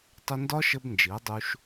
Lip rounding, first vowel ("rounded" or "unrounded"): rounded